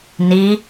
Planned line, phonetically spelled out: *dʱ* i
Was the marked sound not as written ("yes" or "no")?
yes